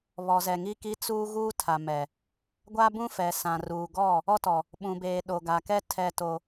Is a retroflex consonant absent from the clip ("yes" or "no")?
yes